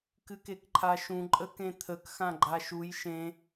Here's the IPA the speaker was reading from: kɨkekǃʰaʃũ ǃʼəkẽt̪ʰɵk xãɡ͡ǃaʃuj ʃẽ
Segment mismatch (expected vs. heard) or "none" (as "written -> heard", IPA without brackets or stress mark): ɵ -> ə